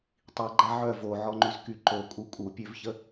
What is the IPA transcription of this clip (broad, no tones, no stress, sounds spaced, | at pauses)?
tˤ i ɡ͡ǃ a ʕ œ v o ʕ ɔ ŋ͡ǃ y z k y ǃ o kʼ u kʼ u pʲ ø v ç ə